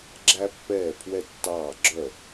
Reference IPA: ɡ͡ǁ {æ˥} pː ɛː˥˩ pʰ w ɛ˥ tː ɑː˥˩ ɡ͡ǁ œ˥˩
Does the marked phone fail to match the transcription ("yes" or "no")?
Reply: no